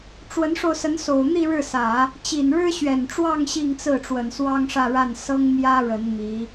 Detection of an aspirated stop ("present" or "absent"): absent